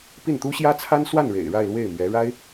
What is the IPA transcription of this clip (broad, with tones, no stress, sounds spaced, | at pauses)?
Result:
p i˥˩ n t̪ u˥ ɕ j ä˥ t͡sʰ a˥ n s w a˥˩ n ɻ ḛ˨˩ ɪ̯ ɻ a˥˧ ɪ̯ l w e˥˩ ɪ̯ m ɥ ɛ˧˥ ɻ a˥ ɪ̯